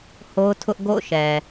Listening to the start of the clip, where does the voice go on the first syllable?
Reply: high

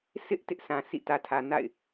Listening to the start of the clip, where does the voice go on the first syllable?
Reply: high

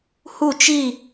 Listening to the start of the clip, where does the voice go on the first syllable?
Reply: falling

